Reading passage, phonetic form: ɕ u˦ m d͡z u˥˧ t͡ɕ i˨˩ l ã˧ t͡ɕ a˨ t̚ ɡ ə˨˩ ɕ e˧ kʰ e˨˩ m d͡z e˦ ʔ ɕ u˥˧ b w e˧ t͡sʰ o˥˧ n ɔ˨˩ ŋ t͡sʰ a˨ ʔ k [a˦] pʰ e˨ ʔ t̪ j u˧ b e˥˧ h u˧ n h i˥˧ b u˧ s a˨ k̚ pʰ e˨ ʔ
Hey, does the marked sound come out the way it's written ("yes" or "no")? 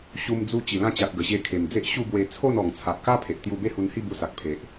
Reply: yes